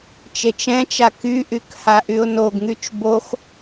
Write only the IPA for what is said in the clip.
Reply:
t͡ʃ e t͡ʃ ɛ̃ t͡ʃ a k y ʔ y k h a ʔ y ʊ̯ n o ɡ ŋ y t͡ʃ b o x

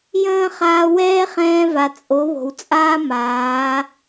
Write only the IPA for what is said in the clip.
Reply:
j ə̃ː˦ χ aː˧ w ɛː˦ χ ɛ̃ː˧ v a˨ t͡sʼ o˨˦ β o̤˨ w t͡sʼ aː˦ m aː˨˦

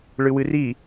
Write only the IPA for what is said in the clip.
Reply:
ɭ ɨ w ɨ r i

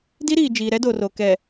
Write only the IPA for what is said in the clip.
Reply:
d i˦ ɾ iː˨ d͡ʒ iː˨ ɾ ɛ˦ d o˨ r o˨ k ɛ˨

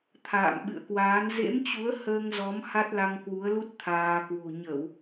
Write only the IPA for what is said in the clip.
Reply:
t̪ʰ a̰ː˧˨ m ɓ ɨ̰˧˨ ə̯ k w aː˨˦ n z ḛ˧˥ m t͡ɕ u˨˦ ə̯ h əː˧ ŋ z ɔ˨˦ m h a˦˥ t̚ l a˧ ŋ k w u˨˦ ə̯ l u˦˥ t̚ t̪ʰ aː˧ k w o̤˨˩ ɲ ə˧˩˨ w

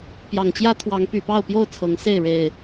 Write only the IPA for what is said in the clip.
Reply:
p j ɑ˨˩ ŋ t͡ɕ j ä˦ t̪ʰ w ɑ˨˦ ŋ p y˨˩ p ɑ˥˨ ʊ̯ p j o˥˨ ʊ̯ t͡sʰ ɤ˨˦ ŋ s e˥˨ ɪ̯ ɻ e˨˩ ɪ̯

